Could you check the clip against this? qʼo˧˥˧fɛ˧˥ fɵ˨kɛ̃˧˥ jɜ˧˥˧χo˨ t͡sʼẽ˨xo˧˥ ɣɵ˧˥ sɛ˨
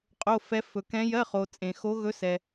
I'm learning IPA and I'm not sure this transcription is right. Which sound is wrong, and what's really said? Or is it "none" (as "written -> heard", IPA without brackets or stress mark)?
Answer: none